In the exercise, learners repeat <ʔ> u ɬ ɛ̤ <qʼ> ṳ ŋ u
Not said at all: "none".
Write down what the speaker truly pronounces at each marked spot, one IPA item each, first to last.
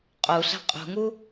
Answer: qʼ, qʼ

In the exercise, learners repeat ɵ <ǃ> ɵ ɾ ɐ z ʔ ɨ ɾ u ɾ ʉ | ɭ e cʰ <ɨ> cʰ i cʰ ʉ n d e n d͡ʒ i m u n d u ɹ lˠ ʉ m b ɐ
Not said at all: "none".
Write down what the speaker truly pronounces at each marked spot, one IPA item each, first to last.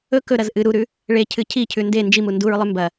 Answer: k, ɨ

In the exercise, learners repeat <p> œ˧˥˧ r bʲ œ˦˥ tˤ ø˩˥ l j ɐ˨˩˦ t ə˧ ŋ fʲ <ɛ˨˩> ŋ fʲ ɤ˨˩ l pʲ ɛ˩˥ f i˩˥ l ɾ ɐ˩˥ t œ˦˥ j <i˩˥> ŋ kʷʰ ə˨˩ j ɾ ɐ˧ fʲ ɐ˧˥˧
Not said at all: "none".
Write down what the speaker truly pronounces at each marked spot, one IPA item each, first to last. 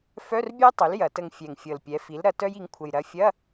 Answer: f, ɛ˨˩, i˩˥

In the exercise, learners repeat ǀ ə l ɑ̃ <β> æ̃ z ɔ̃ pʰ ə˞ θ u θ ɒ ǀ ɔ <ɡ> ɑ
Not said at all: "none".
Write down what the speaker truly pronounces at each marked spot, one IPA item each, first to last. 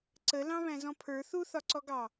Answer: β, ɡ

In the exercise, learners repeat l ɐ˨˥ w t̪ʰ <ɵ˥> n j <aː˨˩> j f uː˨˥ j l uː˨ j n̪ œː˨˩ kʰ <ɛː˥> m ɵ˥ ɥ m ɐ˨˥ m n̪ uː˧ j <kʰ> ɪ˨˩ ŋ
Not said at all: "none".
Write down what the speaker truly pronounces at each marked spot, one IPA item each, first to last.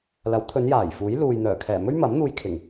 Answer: ɵ˨˧, aː˨˩, ɛː˨˩, kʰ

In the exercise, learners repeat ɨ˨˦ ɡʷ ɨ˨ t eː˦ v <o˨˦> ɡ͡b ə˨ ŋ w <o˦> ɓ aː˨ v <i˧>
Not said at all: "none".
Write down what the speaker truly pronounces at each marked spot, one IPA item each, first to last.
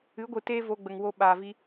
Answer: o˧, o˧, i˧

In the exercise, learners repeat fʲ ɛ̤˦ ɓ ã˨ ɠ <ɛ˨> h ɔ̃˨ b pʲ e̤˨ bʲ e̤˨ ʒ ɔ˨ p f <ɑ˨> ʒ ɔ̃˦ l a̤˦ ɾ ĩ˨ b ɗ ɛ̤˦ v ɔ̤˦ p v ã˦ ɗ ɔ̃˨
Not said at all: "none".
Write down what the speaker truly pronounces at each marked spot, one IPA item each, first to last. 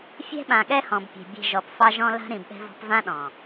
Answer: ɛ˦, ɑ˦

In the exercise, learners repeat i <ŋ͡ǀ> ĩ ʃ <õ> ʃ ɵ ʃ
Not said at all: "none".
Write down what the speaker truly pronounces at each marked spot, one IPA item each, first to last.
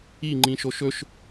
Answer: ŋ͡ǃ, o

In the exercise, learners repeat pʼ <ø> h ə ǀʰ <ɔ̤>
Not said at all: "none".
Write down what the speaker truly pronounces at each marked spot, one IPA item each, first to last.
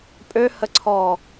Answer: ø, ɔ

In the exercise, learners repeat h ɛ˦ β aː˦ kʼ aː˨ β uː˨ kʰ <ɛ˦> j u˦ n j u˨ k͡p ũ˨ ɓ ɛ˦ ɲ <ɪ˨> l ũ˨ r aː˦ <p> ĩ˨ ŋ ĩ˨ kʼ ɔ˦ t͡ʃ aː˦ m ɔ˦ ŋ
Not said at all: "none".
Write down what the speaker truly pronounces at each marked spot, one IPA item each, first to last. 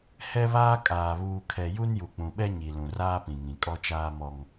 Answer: ɛ˨, i˨, p

